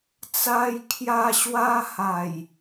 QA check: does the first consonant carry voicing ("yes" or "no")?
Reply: no